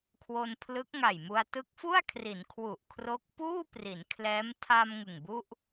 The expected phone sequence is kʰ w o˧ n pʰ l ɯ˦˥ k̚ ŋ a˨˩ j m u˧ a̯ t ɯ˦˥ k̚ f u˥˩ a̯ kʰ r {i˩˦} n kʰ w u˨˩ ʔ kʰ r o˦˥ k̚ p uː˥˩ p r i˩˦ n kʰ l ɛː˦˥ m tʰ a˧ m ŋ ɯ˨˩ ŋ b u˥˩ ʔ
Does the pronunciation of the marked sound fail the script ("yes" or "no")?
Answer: no